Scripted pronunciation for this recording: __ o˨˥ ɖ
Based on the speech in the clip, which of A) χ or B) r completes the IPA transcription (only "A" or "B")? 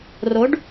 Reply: B